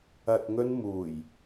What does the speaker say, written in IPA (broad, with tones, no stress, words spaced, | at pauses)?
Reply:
ɐ˨t̚ŋɵ˧n muː˨˩j